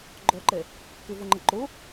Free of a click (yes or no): no